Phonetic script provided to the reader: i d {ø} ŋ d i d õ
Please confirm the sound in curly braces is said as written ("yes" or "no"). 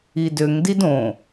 yes